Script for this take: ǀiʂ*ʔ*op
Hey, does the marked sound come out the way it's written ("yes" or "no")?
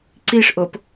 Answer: yes